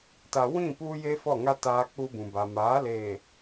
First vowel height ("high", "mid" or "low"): low